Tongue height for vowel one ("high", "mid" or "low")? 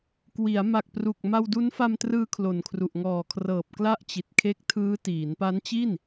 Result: high